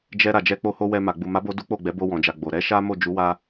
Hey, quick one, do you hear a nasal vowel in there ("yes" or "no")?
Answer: yes